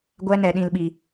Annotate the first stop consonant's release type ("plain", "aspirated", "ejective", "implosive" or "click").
plain